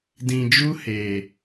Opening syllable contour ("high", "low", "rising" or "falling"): low